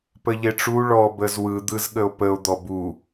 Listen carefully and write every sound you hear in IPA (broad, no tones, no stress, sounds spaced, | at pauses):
p ə ʎ e ʈ͡ʂ u ɭ ɔ b ə z w ɯ d̪ ɯ z ɠ ə o̯ p ə o̯ d̪ ɔ b u